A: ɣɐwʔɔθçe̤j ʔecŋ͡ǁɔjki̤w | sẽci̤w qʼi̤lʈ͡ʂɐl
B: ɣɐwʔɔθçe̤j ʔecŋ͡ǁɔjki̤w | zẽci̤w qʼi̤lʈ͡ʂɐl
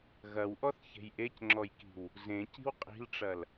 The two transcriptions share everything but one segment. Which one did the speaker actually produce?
B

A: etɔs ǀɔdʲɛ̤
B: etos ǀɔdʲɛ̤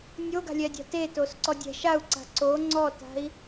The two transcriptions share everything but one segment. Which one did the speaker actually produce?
B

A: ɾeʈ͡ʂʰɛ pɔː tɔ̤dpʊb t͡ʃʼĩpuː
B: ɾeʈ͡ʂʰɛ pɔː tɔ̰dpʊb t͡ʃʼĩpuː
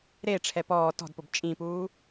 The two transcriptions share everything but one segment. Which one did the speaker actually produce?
A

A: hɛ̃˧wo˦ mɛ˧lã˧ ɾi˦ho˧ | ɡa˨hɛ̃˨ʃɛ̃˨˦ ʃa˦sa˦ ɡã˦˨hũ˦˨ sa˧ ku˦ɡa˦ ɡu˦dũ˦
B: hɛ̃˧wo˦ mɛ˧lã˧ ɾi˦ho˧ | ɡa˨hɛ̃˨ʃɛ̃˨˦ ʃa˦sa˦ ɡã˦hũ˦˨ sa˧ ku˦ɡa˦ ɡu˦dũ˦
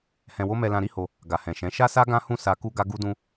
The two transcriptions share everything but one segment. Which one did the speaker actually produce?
B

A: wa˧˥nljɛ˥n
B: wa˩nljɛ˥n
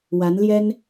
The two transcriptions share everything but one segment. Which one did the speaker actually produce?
A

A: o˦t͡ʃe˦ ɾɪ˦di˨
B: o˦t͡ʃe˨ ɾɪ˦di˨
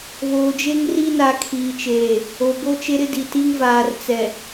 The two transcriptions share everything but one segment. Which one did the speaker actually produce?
A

